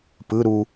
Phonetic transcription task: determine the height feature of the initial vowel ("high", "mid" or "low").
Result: high